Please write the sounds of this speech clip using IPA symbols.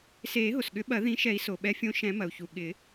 seː˨˩˦ɦo˩sɠʏ˨˩˦ ɓɐ˨˩˦ ðĩ˨˦ʃɛ˨˩˦i̯ so˩ ɓɛ˨˦fʲõ˨˦ ʃɛ̃˨˩˦mɐ˩u̯çu˩ ɠɪ˨˩˦

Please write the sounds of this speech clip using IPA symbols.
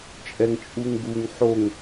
t͡ʃʼɛŋt͡ʃʼuŋɡuŋ ħoŋ

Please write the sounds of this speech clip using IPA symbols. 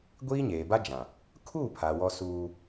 ɡʷiː˦ɲeː˨ba˦ d͡ʒã˨ | kʰu˦˨ pʰa˨wɔ˦ suː˦

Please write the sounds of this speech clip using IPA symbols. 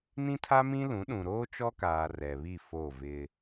nĩ˦tʰa˦mĩ˦lũ˨˦ ɗũ˨ɾoː˦t͡ʃɔ˦kaː˨ rɛ˨βi˦˨ fo˦˨vɪ˦

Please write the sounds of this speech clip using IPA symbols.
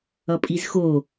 ʌpʼizxo

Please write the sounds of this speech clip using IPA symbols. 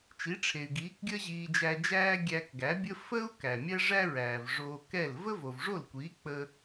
t͡ʃi˩˥ ʈ͡ʂʰe˩y̯ɡiː˩˥kɡʲəː˥ ʑiː˧d͡ʒæ˧d͡ʒæː˥ ɡʲæ˧kɡæ˩˥bʲə˥ fə˥u̯ kæ˩mʲæ˥ʐæ˥ɹæː˩v ʐoː˧kɛ˥˩l və˥vo˩vʐo˥˩lkʷiː˩˥ k͡pə˧

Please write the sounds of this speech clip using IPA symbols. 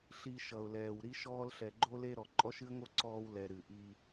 ɬi˨ ʃʌ˨ʊ̯lɛː˨w ɾi˦ʃɔː˦l ɬɛ˨ɡ͡ǃo˦le˦ɾɔ˨ ǃʼɔ˦ʃɨ˦ə̯ŋo˦ ǀɔː˦wlɛ˨ ɾɨ˨ʔi˦

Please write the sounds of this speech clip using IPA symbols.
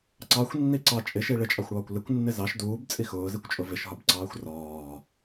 ǀɑxʷnːi ǀɑ t͡ʃʼɪʃi ɭɪt͡ʃʼɑxʷɽɒːkʷ lɪkʷnːɪ zɑʃ duːbt͡sʼi xʊːzikʷt͡ʃʼʊ vɪʃɦɒbǀɑːxʷ rɒː

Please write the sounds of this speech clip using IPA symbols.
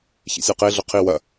çḭsʲaqe ɮɵqʰi wɐ

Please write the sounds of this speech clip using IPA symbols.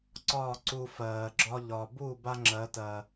ǀɒː˦˨ ǀu˧fɜː˨ɡ͡ǁɒ˦ ʎɒ˨bu˦˨ ba˦ŋ͡ǁɜ˨˦tɜ˨

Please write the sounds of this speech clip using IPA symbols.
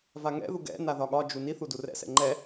vaŋɛ̰ðu ɡɛ̰ naðɒɠɒd͡ʒu ni θudurɛ̰sɛ̰ ŋ͡ǃɛ

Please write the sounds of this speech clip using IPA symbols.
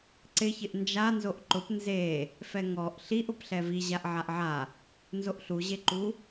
ǀɪçɪʔ nd͡ʒa nzoʔǃʊp nze | fɛŋɔʔ ɬiʔ ʊpɬɛvi ʑaʔʕaʔʕa | nzoʔɬuʑeǃu

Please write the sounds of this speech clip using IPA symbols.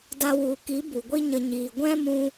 da˧wu˨ki˨˦ bu˨ɡʷi˦ɲə˧ ɲiː˨ɡʷɛ̃˦mũ˧

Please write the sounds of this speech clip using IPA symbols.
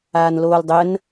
aːnloːldˤən

